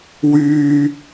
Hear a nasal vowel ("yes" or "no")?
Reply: no